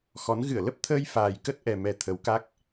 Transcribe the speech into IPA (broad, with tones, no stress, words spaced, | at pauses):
xɔ˨˦n ɣɨ˧˩ə̯lə˦˥p̚ t̪ʰəː˧jfaː˨˩j kə˦˥t̚ ʔɛ˨˩mɛ˨˩ t̪ʰə˨˦wka˦˥k̚